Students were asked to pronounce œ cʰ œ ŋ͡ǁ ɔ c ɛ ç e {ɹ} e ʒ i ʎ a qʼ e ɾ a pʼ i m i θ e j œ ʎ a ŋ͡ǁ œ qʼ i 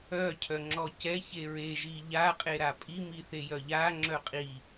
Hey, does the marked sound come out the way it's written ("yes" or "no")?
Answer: yes